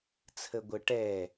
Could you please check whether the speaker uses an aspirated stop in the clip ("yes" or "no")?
yes